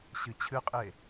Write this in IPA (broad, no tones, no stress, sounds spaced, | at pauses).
ɕ ɨ t͡ɕʰ ɨ qʼ e